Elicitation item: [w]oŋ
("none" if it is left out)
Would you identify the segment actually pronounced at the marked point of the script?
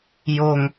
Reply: j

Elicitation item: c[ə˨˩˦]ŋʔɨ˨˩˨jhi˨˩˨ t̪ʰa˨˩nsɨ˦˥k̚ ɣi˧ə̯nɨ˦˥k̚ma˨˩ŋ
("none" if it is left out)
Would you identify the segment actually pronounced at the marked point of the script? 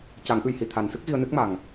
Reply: a˨˩˦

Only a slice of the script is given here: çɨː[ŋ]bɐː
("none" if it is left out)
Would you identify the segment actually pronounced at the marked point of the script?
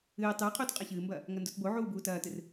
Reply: m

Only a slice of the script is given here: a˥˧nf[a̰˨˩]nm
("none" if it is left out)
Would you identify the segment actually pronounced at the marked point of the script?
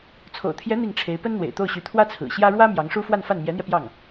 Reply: a˥˩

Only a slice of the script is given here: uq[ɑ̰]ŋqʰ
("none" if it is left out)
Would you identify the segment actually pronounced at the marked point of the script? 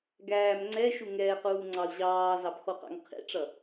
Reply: ɑ̰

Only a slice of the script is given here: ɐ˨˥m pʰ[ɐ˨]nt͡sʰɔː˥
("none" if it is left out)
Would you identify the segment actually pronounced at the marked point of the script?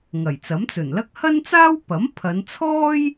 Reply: ɐ˨˧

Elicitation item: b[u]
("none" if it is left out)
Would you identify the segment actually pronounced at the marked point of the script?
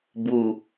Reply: u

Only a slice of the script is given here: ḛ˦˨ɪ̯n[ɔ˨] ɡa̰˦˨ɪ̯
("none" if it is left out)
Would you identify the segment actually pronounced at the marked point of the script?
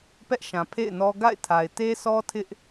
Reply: ɔ˦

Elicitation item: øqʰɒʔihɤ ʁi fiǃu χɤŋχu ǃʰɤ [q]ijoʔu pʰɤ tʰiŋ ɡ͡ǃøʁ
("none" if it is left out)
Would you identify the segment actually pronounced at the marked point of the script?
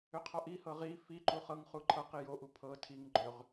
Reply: q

